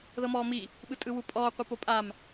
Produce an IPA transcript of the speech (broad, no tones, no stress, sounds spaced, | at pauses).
ð ɤ m ɔː m i | ɓ ɯ tʼ ɯ w u pʼ ɔː qʷ ɯ p o pʼ a m